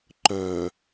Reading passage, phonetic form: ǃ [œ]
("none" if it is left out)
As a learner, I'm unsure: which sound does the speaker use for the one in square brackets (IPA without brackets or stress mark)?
œ